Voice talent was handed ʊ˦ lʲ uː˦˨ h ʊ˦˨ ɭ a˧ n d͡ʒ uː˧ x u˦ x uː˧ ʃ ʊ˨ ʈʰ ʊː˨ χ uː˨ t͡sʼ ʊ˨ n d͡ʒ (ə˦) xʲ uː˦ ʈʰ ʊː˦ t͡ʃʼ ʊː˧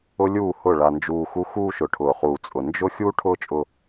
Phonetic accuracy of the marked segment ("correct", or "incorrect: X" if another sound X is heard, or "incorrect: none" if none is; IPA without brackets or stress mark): incorrect: ʊ˦